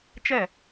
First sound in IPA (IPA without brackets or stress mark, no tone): t͡ʃ